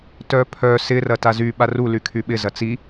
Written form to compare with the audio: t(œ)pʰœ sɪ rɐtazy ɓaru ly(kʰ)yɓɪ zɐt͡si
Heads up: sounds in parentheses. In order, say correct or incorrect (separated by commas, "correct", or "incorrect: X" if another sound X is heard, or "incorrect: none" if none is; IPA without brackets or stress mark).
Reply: correct, correct